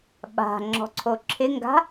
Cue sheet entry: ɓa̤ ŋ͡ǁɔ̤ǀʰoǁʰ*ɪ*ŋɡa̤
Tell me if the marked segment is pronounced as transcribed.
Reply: yes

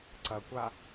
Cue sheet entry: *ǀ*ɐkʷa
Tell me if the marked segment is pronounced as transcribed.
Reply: yes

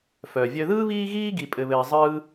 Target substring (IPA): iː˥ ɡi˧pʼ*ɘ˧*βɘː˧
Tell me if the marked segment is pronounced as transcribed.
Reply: yes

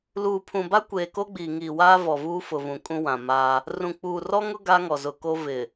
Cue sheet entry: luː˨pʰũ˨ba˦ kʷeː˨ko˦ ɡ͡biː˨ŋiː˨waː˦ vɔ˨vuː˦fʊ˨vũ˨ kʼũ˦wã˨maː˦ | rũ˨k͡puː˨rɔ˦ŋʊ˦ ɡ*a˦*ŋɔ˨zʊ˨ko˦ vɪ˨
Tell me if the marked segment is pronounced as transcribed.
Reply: yes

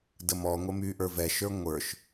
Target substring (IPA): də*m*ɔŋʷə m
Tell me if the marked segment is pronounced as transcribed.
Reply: yes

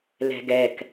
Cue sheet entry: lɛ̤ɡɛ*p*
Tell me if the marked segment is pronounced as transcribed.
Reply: no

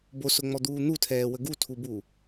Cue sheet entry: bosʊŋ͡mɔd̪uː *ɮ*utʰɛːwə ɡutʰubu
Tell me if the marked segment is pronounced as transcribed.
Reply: no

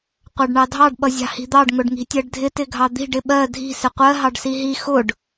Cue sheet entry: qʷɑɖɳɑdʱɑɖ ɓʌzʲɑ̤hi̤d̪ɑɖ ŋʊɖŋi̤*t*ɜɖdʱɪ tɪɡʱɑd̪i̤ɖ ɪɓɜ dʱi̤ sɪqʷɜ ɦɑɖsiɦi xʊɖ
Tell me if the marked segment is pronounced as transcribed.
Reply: no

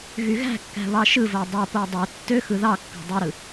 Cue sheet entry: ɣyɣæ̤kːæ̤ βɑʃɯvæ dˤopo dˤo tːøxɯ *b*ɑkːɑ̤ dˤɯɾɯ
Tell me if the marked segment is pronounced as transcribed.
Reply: no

